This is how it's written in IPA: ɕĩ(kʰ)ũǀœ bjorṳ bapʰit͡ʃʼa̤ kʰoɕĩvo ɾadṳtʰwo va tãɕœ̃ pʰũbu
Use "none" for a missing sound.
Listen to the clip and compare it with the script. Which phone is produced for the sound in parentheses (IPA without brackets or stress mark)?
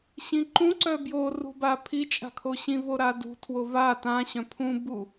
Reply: ǃ